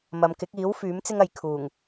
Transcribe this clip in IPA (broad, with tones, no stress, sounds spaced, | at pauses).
m ɐ˨˧ m k ɪ˨˥ k̚ iː˨˥ w f yː˨˥ m t͡s ɪ˥ ŋ ɐ˨ j kʰ uː˨˩ ŋ